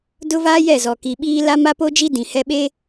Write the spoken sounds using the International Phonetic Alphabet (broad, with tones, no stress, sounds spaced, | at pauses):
d ʊ˦ v aː˦ j ɛ˦˨ z ɔ˨ k i˨ ɓ iː˦ l a˦ m a˦ p o˦ d͡ʒ i˦ d ĩ˨ h ɛ˦ ɓ eː˦